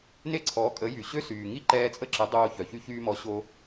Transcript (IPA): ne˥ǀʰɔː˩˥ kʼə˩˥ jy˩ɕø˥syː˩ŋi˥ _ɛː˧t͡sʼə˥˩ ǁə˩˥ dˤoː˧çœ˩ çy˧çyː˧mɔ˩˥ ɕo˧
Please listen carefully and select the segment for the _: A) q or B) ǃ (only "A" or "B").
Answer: B